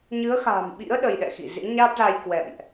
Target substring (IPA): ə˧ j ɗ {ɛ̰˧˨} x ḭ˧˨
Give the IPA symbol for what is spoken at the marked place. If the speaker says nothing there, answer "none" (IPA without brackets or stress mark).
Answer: ɛ̰˧˨